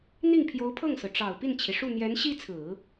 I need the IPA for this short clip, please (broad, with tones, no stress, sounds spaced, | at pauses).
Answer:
n̪ i˥˩ ŋ pʰ j o˧˥ ʊ̯ pʰ ɤ˥˩ ŋ s ɹ̩˩ ʈ͡ʂ ɑ˨˩ ʊ̯ p i˥˩ n t͡ɕʰ i˩ ʂ u˥˩ n̪ j ɛ˧˥ n ɕ i˥ t͡sʰ ɹ̩˨˩˦